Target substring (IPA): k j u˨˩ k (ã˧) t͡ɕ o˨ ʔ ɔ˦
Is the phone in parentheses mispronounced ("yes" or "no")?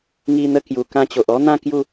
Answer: no